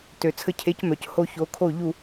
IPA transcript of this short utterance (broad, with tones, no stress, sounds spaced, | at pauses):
t ø˩ t͡sʰ ə˧ cʰ e˩˥ c m œ˩ c h o˧ ç o˩˥ kʰ o˥˩ ʎ u˥˩